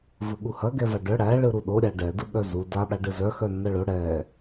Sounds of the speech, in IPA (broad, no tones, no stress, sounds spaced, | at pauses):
v ɯ ɠ u h ɐ ɡ ɛ v a ɖ œ ɽ æ ɭ ɯ ɾ u ɗ o ɾʲ a ɖ ɛ d ɯ ɠ œ z u d a ɗ a ɖ ɯ z œ x œ nː ɐ ɭ o ɽ ɛ